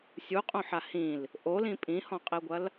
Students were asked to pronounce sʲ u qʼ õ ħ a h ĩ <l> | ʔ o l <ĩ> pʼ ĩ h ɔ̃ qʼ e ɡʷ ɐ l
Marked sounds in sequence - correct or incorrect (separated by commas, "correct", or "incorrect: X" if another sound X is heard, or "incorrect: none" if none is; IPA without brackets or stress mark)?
correct, correct